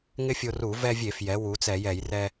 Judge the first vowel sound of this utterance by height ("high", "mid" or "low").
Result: high